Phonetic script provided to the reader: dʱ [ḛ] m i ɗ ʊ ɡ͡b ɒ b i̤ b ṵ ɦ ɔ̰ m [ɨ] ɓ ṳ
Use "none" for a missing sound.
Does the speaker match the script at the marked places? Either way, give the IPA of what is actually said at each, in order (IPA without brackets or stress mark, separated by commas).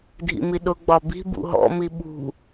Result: ḭ, i